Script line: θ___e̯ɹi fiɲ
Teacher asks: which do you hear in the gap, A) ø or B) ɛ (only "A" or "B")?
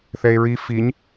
B